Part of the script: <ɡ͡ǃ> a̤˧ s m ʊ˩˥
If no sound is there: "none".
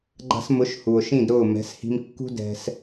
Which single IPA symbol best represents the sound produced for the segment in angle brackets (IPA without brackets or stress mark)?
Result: ɡ͡ǃ